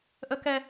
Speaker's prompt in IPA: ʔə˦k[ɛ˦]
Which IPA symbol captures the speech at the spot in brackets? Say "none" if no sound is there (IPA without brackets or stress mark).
ɛ˦